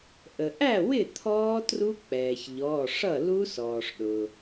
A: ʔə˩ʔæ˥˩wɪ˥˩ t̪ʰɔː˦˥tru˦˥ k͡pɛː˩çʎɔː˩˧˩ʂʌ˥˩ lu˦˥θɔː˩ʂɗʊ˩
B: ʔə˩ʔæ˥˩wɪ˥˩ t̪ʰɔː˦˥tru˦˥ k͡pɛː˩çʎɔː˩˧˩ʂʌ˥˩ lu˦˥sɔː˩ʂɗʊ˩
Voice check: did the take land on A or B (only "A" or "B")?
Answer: B